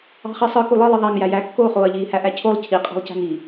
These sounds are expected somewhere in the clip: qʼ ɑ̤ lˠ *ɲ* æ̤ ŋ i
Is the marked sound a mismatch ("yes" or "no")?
yes